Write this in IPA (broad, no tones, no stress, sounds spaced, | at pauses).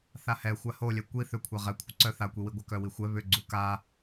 θ a h ɛ xʷ a h o lʲ ɛ kʷ i θ ʏ kʷʰ a ʁ ɛ kʷʰ ə ǀ œ θ a kʷ i w i ɡʷ œ k œ w i xʷ ɛ β ʏ ɡ͡ǀ u k a